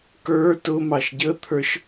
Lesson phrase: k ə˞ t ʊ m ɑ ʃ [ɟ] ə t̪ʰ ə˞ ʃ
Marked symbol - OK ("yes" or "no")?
yes